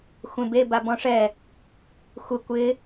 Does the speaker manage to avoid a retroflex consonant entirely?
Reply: no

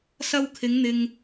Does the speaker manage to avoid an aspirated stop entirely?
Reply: no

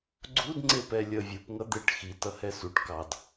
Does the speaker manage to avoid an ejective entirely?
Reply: yes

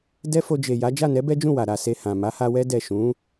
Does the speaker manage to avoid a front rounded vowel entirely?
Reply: yes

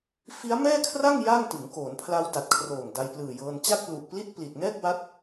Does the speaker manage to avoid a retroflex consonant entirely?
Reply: yes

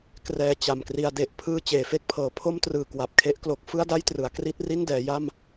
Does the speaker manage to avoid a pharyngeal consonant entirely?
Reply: yes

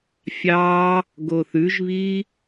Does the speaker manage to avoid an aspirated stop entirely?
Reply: yes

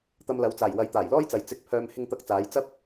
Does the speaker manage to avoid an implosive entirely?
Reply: yes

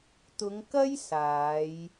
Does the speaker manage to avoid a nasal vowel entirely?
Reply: yes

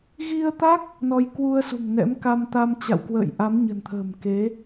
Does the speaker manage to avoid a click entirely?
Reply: yes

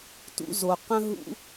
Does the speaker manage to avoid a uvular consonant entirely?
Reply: no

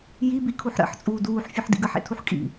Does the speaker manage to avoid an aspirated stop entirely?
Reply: no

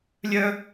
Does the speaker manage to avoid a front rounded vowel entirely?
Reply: no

